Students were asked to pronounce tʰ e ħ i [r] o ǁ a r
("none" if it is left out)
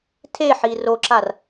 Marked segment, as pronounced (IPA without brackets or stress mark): r